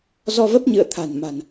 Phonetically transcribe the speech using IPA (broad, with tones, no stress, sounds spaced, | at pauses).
z ɔ˧ v ə˦˥ p̚ ɲ ɨ̰˧˨ ə̯ t̪ʰ a̤˨˩ n m a̤˨˩ n